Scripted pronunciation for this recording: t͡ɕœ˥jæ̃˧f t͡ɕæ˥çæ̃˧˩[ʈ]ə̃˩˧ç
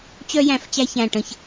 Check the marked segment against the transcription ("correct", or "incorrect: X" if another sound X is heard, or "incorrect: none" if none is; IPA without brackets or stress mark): correct